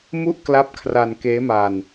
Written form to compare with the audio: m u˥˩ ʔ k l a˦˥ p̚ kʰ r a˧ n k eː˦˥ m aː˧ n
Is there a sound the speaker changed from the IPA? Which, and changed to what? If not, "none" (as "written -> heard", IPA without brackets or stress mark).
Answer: none